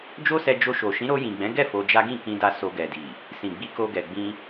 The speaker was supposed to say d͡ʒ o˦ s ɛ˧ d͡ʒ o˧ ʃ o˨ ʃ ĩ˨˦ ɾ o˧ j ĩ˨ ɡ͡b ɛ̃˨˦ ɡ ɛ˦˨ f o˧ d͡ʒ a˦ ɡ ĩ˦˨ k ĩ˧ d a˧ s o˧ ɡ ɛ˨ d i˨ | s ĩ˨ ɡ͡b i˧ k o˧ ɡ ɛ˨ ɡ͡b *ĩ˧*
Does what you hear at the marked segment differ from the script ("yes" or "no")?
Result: no